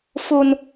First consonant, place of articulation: labial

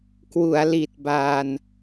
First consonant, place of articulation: velar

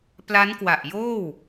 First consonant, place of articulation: labial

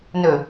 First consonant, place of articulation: alveolar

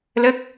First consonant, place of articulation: alveolar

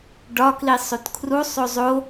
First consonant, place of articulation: retroflex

